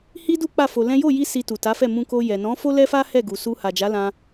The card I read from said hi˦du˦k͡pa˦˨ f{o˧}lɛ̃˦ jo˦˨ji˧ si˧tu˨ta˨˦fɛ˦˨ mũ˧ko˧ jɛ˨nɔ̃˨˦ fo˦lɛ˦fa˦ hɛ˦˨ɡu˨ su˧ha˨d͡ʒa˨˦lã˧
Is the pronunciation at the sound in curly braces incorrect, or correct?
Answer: correct